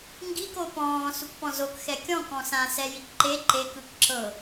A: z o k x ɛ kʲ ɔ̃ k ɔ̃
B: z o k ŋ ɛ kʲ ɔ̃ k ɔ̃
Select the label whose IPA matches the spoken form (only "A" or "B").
A